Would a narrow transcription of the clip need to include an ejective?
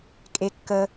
yes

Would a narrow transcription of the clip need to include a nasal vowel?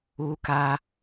no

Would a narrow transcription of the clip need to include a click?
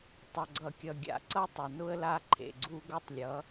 yes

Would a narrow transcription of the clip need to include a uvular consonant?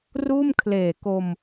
no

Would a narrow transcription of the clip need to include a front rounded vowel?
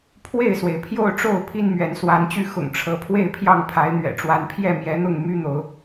yes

